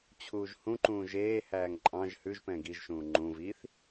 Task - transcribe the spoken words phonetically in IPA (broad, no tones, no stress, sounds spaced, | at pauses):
t͡ɕʰ uː ʒ h ũ ǃ ũː ʒ eː h æː ŋ ǃʼ ɑ̃ ʒ h ʉ ʒ p ɛ̃ ɡ i ʒ ʃ ũː ŋ͡ǃ ũ v i θ